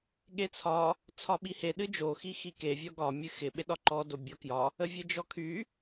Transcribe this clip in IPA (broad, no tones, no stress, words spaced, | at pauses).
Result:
ɠet͡sʰɒ | t͡sʰɒɓihe ɗɨd͡ʒo xixike vʲɔɡɒ mʲɨxɪ ɓeɗɒǃɔ dobʲɒkjɒ | əvʲɨd͡ʒɔkʰy